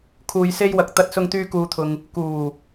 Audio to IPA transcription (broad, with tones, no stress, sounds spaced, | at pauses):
kʰ uː˧ j s e˥ j w ɐ˨ k̚ t̪ ɐ˧ t̚ s ʊ˧ ŋ t̪ yː˧ k uː˨ t̪ʰ ʊ˨ ŋ | k uː˨˩